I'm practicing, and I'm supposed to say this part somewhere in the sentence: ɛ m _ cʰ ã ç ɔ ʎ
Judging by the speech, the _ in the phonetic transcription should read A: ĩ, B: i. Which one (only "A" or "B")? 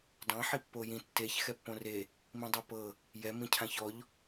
A